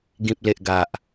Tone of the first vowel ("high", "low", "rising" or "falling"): low